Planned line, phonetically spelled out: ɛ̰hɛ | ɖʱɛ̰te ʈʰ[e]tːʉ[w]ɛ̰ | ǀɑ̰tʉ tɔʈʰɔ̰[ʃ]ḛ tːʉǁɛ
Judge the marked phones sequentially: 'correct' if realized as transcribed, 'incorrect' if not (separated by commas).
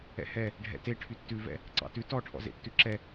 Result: incorrect, incorrect, incorrect